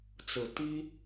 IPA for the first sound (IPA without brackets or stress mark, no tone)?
t͡s